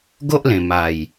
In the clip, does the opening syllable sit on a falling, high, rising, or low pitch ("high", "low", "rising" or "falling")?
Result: high